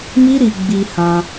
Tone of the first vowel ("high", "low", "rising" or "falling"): high